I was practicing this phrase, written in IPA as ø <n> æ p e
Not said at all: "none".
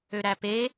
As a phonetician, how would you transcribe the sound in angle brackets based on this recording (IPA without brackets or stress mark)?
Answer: ɾ